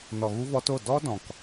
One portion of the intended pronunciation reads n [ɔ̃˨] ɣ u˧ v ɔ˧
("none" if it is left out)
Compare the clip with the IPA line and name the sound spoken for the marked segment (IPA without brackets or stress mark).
ɔ˨